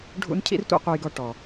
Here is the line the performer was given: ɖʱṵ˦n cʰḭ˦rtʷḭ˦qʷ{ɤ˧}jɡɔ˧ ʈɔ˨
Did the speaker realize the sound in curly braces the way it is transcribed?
yes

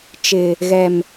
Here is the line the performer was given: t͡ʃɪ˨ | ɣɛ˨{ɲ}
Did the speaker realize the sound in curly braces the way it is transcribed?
no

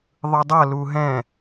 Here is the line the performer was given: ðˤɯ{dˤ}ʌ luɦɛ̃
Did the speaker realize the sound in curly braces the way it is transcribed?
yes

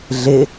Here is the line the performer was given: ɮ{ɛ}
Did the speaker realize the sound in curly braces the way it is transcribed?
no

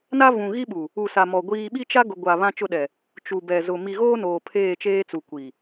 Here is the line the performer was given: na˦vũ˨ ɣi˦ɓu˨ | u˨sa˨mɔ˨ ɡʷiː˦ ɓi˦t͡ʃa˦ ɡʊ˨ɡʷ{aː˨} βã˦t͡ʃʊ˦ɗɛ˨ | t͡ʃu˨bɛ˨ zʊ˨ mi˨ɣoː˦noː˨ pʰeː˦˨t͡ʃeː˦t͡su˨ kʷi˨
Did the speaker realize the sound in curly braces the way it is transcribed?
no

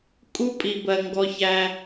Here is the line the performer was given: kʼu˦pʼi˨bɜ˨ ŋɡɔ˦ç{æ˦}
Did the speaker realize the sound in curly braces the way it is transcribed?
yes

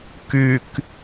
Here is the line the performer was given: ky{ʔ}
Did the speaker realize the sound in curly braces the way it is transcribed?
no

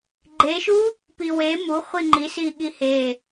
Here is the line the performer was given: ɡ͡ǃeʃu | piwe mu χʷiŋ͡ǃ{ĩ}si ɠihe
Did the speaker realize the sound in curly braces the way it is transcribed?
no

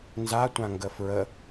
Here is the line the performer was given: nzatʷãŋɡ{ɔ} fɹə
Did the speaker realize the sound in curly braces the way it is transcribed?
no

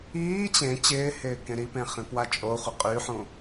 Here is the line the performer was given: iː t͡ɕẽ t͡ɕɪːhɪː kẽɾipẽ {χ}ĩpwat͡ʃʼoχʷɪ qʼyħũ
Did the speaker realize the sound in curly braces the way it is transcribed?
yes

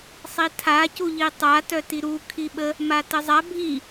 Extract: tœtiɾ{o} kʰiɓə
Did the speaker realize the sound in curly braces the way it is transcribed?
no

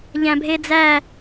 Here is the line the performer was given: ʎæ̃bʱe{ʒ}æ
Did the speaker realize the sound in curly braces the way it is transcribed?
no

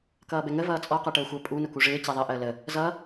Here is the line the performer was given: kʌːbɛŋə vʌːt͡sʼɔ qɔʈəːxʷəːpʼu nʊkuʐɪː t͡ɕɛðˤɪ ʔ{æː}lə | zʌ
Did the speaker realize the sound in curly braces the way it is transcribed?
no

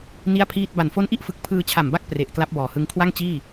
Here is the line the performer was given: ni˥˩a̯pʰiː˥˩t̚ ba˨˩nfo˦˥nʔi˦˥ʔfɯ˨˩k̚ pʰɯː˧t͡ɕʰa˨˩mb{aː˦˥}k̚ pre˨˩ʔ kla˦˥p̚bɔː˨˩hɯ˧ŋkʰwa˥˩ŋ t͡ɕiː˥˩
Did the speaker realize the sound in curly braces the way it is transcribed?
no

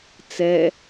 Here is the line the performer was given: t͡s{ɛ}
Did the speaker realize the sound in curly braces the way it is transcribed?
yes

